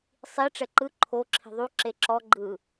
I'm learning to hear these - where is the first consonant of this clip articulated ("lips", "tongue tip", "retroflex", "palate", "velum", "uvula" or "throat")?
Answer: tongue tip